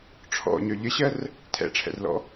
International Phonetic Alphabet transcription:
ʈ͡ʂʰ ɔ̰ ɲ œ ʎ ə ɕ ɜ r | tʰ ɛ̰ ʈ͡ʂʰ ɛ̰ r l ɔ̰

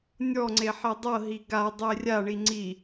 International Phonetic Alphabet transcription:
nʲ ɔ ŋ͡ǀ e ħ e dˤ ɤ ɦ i ɡ a dˤ e rʲ a ɳ i ŋ͡ǀ i

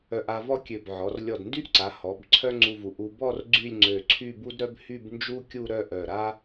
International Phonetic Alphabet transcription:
œ˧ ʔ a˧ v ɔ˥ kʲ ø˧˩ b ʕ ɔ˩˧ r lʲ ɔ˧˩ d n d y˥ ʔ ǀ a˩˧ h ɔ˩˧ b ǀʰ œ˥ ŋ͡ǀ u˧ v u˩˧ ʔ u˧ b ɔ˥˧ r ɡ͡ǀ y˥˧ lʲ ŋ͡ǀ ø˧˩ ǀʰ y˥˧ b u˥ d ɾ œ˥ b h y˥˧ b n d͡ʒ u˥ kʲ u˥˧ ɾ œ˥˧ ʔ œ˧˩ ɾ a˥

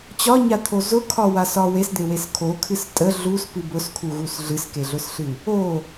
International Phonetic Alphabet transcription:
t͡ɕ ɒ ɲ a t̪ʰ o z ʊ kʰ ɒ w a s ɒ w e s d̪ e w e s kʰ o kʰ ɨ s tʼ ə ɮ u s p ɨ b ʊ s kʰ u ɣ u s ɮ ɨ s k e ɮ ʊ s ɬ ɨ | o

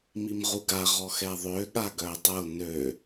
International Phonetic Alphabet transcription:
m i m ʁ u ɡ a ʁ ɔ x ɛ ðˤ ø ɠ a ɡ œ e̯ dˤ ə o̯ n ø

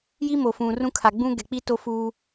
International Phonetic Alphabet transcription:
j i˦ m o˨ f ũ˨ r ũ˦ kʰ a˨ ɡ͡b ũ˦ ɡ ɛ˨ k͡p i˦ t o˦ f uː˦

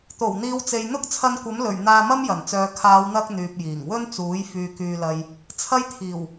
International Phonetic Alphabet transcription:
t̪ o˨˩ w n̪ iː˨˧ w t͡s e˨ j n̪ ʊ˥ k̚ t͡sʰ ɐ˧ n kʷ ɐ˨˥ m l ɵ˨˩ ɥ n̪ aː˧ m ɐ˥ m j ɐ˨˩ n t͡s œː˨˧ kʰ aː˨˧ w n̪ ɐ˧ k̚ n̪ yː˨ p̚ j iː˨˩ ŋ w ɵ˥ n t͡s uː˨˥ j f yː˨ k yː˨ l ɐ˨ j | t͡sʰ ɐ˥ j t̪ʰ iː˨˩ w

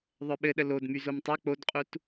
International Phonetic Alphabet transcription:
ðˤ œ ɓ ɘ ɗ ə l o d m y z o m tˤ o k͡p o d qʼ u t

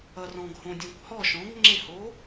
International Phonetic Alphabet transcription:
ʌ r ɔ̃ ɡ h õ dʲ ɔ̃ kʷ h ɔ ʃ ɔ̃ ɡ ŋ͡ǁ e h o

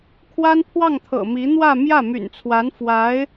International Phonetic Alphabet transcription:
kʰ w a˥ n pʰ w ɑ˥˩ ŋ t̪ʰ ɤ̰˨˩ m i˧˥ n̪ w ä˥˧ m j ä˥˩ m y̰˨˩ n t͡sʰ w a˧˥ n f w a˧˥ ɪ̯

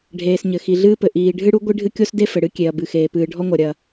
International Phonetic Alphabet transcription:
ɖʱ eː˩ s ɲ ɘ˩ x i˩ ɮ ɨː˥ p ɘ˩ ʔ iː˩ ɖʱ ɨ˥ ɽ u˥ ɡʷ i˥ ɖʱ ɨ˥ kʲ o˥ s d e˥ f ɘ˩ ɽ ɨ˥ kʲ e˩ ɐ̯ b ɨ˩ x eː˩ p ɨː˩ ɖʱ ɔ˥ ŋʷ ɐ˩ ɾʲ ɐ˩

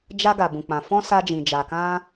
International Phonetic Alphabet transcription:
d͡ʒ a˧ ɡ a˨ b ũ˨ k͡p ã˨ f ɔ̃˧ s a˧ d͡ʒ ĩ˨ d͡ʒ a˨ k ã˧

